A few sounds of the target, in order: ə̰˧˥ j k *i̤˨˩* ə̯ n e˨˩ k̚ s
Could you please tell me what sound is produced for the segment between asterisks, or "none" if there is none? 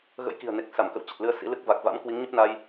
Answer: i̤˨˩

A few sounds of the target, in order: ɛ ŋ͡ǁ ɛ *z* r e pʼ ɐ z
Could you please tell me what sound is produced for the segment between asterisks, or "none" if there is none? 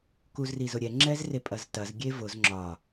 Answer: z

